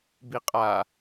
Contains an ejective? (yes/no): yes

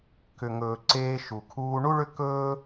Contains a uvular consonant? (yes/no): no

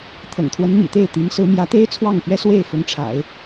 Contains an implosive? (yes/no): no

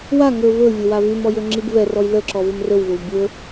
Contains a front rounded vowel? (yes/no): yes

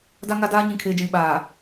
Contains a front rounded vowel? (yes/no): no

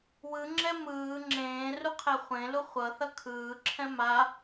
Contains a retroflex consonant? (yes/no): no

